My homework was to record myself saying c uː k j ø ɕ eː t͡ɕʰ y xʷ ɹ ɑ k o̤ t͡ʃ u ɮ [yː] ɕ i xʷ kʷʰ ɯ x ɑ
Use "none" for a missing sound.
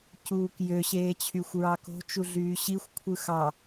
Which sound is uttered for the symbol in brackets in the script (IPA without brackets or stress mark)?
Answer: yː